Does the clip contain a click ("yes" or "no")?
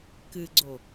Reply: yes